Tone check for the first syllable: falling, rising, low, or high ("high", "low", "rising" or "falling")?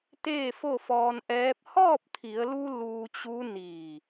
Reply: falling